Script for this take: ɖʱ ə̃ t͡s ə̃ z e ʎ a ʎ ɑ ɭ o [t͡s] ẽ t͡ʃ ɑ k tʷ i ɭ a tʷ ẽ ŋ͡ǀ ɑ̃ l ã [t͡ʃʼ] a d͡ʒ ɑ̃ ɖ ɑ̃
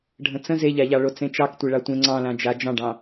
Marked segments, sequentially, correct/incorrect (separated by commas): correct, incorrect